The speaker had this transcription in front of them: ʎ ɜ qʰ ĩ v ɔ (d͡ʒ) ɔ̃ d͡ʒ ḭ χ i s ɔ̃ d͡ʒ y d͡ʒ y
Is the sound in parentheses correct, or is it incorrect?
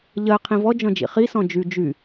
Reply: correct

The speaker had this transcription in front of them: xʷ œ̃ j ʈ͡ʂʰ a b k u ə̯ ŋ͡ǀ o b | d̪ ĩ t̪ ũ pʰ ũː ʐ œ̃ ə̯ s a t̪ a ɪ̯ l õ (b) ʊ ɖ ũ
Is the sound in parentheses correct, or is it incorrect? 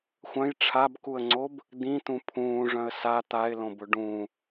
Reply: correct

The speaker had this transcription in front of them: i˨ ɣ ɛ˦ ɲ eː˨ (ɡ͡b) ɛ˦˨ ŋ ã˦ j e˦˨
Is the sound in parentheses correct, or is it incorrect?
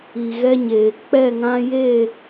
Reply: incorrect: k͡p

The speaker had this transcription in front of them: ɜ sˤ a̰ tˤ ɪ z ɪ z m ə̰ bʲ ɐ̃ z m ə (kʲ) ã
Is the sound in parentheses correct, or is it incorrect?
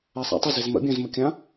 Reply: correct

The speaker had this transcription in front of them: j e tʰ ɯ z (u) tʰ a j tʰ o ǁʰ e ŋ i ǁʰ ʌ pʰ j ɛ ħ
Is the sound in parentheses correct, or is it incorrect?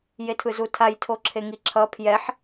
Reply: correct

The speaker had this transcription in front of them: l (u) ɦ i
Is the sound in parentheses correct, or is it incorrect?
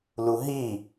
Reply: correct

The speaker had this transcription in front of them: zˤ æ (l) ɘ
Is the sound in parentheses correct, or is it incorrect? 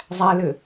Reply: correct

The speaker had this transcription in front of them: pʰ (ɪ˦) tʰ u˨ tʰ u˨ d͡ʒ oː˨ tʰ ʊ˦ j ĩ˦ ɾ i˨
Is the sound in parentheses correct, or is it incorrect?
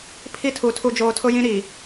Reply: incorrect: i˦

